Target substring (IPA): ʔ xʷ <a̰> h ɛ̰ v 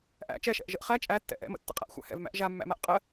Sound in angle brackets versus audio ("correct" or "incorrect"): incorrect